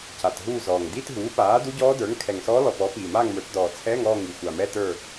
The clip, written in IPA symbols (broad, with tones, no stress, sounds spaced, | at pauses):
c a˨˩ t ɦ uː˦˨ z ɔː˨˩ ŋ d i˧˥˧ t ɦ uː˩˥ p aː˩˥ d u˧˥ ɟ ɔː˧˥ d ə˞˩˥ ŋ kʰ ɛ˨˩ ŋ s ɔː˧˥ l ɔ˨˩ p ɔ˩˥ p iː˨˩ m aː˦˨ ŋ m ə˞˩˥ t d ɔː˨˩ t͡sʰ ɛː˧˥˧ ŋ ɔː˦˨ ŋ i˨˩ xʷ a˨˩ m ɛ˧˥˧ t ə˞˦˨